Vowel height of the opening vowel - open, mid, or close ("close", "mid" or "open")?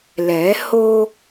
mid